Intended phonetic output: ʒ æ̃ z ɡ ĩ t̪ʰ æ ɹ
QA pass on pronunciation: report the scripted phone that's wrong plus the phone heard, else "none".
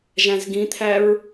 none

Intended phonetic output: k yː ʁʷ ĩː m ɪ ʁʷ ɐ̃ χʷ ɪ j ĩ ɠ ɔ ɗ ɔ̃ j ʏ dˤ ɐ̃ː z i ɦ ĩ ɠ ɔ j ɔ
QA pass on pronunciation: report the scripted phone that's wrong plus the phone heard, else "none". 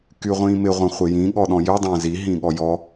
yː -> y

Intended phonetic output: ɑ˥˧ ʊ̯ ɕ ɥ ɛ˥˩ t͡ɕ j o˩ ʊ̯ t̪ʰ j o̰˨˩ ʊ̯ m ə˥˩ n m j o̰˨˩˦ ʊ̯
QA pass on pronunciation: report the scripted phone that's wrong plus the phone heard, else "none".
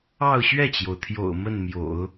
none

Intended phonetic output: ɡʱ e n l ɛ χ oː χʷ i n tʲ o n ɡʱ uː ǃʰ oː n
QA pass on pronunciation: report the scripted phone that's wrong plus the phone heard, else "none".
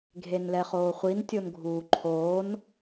none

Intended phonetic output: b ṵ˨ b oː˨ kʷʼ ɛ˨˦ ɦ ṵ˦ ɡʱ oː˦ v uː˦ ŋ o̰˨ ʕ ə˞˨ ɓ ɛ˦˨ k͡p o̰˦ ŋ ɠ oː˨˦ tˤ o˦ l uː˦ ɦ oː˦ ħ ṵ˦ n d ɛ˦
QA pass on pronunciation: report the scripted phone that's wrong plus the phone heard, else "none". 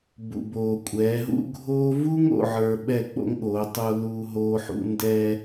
none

